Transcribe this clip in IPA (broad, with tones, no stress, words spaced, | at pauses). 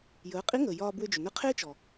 jəː˩˧qʼi˧˥ŋəː˩ jɒː˧bwʏ˧d͡ʒʏ˩nə˧˥ qʰe˥t͡ʃɔ˩